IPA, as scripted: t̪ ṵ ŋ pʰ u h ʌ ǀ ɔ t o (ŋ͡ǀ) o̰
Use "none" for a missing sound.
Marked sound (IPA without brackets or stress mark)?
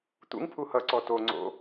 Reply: ŋ͡ǀ